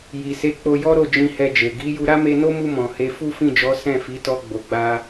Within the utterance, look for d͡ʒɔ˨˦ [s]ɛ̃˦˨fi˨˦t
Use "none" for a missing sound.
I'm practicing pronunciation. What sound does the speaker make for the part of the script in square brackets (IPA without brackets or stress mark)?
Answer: s